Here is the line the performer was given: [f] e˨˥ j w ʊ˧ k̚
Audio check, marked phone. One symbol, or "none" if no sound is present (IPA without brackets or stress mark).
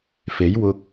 f